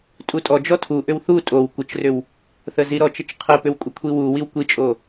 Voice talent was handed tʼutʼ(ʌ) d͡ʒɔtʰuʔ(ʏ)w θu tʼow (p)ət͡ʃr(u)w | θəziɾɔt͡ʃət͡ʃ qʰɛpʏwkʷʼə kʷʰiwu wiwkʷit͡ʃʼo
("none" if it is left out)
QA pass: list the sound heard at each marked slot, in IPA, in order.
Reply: ɔ, ʏ, kʷ, ʏ

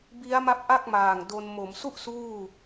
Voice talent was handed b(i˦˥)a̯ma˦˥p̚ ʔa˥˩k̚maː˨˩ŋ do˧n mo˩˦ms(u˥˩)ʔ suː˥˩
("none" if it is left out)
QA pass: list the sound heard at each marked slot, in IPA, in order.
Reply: i˦˥, u˥˩

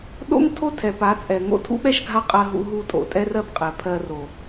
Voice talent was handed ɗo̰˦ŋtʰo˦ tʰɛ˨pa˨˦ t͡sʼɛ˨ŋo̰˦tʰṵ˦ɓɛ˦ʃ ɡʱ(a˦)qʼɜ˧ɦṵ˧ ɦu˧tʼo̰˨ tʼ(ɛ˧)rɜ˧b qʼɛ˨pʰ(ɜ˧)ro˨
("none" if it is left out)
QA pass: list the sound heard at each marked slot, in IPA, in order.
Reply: a˦, ɛ˧, ɜ˧

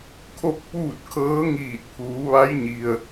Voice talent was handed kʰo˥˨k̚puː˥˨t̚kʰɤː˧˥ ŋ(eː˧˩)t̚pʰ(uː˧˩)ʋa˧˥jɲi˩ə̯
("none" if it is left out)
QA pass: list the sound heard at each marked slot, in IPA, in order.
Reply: iː˧˩, uː˩˧

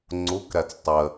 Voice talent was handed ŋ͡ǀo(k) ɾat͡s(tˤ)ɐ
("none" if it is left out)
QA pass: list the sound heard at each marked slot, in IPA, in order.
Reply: k, tˤ

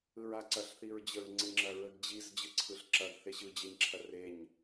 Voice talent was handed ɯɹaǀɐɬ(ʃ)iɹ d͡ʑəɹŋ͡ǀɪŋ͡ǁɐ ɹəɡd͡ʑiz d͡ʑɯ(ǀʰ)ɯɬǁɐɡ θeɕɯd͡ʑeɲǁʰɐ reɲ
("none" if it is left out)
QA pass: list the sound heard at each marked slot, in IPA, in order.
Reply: θ, ǀʰ

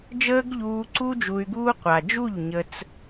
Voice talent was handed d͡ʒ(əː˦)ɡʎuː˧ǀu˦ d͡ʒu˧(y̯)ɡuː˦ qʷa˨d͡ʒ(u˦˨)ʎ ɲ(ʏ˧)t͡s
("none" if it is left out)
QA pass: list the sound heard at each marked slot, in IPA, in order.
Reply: əː˦, y̯, u˦˨, ə˧

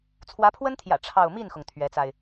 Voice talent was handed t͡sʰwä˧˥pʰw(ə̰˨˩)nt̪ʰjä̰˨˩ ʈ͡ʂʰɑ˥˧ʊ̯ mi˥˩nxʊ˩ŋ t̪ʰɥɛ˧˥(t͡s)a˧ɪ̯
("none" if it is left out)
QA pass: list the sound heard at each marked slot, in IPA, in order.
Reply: ə˥, t͡s

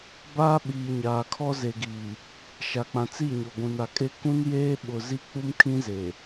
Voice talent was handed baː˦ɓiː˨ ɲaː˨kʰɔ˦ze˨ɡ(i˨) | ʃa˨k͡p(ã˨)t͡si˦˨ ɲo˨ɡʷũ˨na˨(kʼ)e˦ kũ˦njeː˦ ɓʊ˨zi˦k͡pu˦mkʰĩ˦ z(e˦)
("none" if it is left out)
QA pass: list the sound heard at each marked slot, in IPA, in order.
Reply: iː˨, ã˨, kʼ, e˨

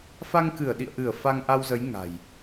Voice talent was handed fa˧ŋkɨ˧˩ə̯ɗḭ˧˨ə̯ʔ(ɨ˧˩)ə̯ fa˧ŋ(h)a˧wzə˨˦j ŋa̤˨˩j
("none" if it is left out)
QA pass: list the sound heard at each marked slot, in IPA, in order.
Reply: ɨ˧˩, ʔ

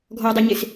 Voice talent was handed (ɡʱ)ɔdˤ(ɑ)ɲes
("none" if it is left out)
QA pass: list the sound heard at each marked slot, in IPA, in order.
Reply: ɡʱ, ʌ

